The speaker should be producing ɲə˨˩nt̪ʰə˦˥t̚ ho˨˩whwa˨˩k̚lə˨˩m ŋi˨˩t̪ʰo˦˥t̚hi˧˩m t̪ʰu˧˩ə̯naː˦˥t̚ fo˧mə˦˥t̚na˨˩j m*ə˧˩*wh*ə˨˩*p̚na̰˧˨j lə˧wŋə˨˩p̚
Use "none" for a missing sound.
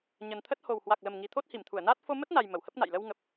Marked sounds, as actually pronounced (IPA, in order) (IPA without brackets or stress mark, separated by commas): ə˧˩, ə˦˥